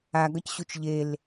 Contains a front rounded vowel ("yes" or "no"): no